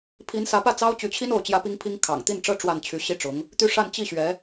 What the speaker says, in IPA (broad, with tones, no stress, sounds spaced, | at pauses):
pʰ i˧˥ n s ä˧˥ p ä˥˩ t͡s ɑ˥ ʊ̯ t͡ɕ y˧˥ t͡ɕʰ i˥ n o˥˩ ʊ̯ t͡ɕ j ä˥ p i˥ ŋ pʰ i˥ ŋ kʰ ɑ̰˨˩ ŋ t̪ i˥˩ n ʈ͡ʂ ɤ˥ ʈ͡ʂ w a˥˩ n t͡ɕʰ y˧˥ ɕ i˥ ʈ͡ʂ ʊ˧˥ ŋ | t̪ y˥˧ ʂ a˥˧ n t͡ɕ i˥˩ ɕ ɥ ɛ˧˥